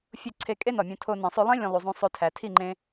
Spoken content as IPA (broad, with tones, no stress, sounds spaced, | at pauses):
fʲ o˦˨ ǀʰ e˧ kʼ e˦ n ɒ˨ mʲ õ˧ tʰ o˧ n ĩ˨ sˤ o˧ lˠ ẽ˦ lʲ õ˧ lˠ u˨ zˤ ũ˧ sˤ o˧ tʰ æ˨ tʰ i˦˨ ŋ͡ǃ ẽ˧